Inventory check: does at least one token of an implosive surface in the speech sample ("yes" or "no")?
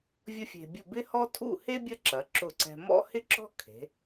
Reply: no